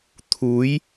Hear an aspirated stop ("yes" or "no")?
yes